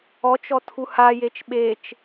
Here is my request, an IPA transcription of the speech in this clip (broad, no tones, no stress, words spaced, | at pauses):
ɔt͡ʃɔ tʰuhajet͡ʃ ɓet͡ʃ